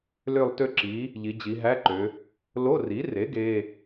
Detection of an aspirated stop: absent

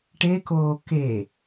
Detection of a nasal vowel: absent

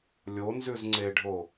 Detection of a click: present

